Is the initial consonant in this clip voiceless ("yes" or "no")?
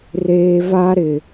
no